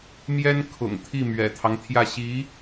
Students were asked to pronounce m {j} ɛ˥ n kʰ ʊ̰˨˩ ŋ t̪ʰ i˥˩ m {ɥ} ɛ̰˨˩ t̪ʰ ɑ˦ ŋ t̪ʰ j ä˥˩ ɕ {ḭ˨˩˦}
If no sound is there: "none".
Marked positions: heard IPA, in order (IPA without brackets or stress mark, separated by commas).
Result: j, ɥ, i˧˥